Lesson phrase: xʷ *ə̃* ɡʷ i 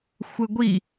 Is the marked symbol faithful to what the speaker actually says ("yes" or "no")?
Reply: no